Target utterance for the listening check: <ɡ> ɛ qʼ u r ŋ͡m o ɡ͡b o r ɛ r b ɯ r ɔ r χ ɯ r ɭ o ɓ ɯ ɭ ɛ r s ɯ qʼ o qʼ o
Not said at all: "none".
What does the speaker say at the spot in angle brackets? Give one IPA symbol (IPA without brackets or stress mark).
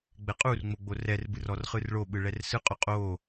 ɡ͡b